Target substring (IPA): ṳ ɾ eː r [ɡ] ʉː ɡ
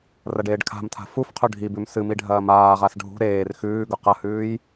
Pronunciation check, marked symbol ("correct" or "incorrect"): incorrect